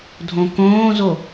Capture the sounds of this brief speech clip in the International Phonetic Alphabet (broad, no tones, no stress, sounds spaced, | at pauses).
dʱ õ k õː z o